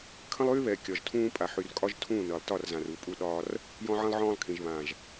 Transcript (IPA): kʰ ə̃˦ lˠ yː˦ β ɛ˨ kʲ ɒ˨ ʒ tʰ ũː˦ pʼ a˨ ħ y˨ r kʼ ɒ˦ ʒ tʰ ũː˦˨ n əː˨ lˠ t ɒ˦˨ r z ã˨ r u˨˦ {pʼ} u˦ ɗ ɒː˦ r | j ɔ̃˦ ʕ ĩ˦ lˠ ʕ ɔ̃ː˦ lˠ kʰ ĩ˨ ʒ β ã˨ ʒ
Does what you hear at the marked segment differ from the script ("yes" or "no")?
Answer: no